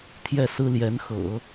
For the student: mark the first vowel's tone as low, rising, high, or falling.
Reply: falling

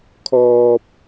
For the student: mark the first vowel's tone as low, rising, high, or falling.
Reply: high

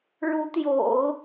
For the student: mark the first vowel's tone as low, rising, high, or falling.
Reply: rising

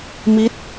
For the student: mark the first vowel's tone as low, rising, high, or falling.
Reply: falling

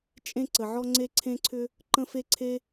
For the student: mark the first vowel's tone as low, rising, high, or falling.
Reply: high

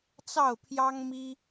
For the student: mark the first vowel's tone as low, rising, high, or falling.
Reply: falling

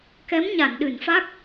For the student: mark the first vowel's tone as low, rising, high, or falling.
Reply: rising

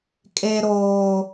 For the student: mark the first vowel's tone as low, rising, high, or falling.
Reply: low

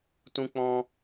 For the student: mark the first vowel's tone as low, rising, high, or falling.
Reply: high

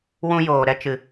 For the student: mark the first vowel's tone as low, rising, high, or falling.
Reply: high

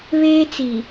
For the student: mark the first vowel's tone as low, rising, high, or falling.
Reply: high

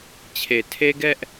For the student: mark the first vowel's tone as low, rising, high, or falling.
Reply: low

